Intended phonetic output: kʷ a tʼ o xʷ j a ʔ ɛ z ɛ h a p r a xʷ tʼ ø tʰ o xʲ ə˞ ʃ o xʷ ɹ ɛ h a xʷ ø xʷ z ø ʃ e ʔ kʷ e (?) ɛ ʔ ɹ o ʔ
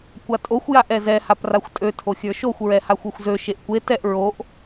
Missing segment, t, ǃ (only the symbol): t